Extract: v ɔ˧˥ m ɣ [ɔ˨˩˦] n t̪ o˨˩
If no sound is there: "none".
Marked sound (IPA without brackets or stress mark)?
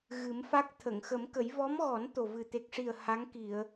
ɔ˨˩˦